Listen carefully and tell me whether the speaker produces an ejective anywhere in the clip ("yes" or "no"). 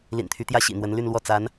no